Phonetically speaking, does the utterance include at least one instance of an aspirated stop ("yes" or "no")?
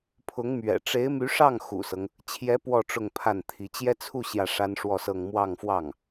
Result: yes